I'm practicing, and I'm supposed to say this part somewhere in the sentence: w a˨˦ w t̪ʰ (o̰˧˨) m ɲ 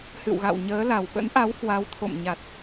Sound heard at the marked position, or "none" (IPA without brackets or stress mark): o̰˧˨